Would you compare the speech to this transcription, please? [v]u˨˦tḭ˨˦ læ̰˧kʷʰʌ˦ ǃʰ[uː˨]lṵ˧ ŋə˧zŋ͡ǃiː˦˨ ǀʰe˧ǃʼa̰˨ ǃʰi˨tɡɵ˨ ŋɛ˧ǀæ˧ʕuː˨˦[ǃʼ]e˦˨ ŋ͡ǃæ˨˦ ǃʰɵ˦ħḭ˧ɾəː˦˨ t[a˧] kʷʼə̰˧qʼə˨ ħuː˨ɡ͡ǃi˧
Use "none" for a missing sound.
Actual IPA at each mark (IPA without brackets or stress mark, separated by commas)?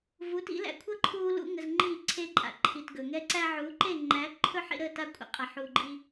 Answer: v, uː˧, ǃ, a˧